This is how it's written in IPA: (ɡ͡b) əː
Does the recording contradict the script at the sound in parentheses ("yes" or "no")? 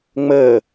yes